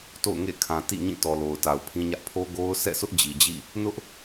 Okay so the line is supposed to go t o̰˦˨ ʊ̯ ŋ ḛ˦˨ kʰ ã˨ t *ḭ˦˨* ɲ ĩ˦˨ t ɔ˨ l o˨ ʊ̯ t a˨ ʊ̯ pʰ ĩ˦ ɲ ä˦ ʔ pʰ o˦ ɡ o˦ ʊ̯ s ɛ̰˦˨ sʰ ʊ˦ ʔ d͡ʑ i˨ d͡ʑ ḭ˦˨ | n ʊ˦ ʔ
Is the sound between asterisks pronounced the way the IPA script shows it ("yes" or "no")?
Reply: yes